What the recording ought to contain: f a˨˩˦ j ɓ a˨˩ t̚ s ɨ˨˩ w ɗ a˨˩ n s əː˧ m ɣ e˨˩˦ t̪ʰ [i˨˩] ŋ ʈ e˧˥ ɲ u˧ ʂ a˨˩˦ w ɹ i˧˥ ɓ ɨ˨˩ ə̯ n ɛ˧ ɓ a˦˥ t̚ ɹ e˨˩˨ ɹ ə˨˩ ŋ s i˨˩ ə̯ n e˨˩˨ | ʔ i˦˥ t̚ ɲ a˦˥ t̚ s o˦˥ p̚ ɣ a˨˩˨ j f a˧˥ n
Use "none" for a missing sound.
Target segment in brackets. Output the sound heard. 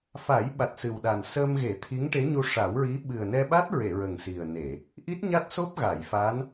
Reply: i˧˥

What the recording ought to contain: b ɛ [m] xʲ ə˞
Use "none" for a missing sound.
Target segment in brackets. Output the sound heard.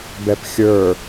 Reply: p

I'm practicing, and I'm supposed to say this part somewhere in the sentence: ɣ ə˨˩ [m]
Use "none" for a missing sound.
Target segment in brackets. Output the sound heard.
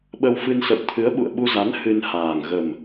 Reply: m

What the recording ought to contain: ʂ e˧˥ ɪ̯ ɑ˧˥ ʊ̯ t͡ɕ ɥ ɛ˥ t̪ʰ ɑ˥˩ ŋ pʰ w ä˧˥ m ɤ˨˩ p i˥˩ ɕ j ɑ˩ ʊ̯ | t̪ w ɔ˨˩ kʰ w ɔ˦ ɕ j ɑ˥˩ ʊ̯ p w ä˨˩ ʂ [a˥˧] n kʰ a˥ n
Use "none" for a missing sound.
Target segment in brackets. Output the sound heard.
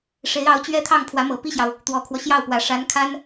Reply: a˧˥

